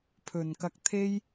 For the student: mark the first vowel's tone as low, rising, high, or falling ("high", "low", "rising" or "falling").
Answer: low